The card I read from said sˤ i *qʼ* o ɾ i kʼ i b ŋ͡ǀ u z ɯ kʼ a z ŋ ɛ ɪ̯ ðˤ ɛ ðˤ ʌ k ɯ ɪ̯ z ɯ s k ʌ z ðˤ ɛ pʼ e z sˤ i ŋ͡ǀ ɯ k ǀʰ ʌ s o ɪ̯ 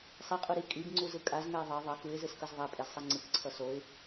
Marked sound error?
no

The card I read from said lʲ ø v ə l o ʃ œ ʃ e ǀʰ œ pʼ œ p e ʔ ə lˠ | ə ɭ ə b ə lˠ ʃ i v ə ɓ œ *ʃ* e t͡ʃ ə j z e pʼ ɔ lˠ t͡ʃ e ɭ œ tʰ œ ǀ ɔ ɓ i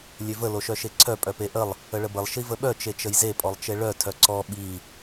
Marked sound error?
yes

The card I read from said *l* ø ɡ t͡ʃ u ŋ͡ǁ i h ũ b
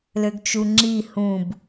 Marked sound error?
no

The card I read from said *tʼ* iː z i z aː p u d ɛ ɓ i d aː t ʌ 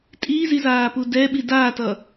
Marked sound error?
no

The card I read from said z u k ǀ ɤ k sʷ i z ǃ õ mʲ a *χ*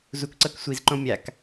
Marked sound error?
yes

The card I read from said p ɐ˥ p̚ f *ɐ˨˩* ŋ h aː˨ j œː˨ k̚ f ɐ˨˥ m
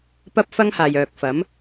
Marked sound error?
yes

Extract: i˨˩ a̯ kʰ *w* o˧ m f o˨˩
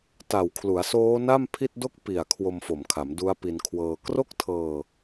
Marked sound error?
no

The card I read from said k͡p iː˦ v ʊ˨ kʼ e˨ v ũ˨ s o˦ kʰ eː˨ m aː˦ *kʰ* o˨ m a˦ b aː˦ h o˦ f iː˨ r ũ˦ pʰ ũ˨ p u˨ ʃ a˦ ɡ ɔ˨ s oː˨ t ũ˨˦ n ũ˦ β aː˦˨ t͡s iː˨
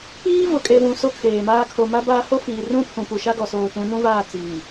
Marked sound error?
no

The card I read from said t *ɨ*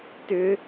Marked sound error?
yes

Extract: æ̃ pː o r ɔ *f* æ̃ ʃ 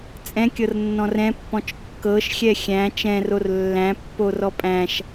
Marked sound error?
yes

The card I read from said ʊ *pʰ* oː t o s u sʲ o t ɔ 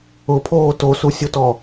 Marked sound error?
no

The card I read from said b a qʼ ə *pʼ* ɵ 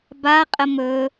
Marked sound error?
yes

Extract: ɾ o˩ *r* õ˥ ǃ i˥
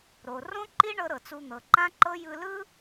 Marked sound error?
no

